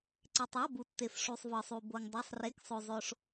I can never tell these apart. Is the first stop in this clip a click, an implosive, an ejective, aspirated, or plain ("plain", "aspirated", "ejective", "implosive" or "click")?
click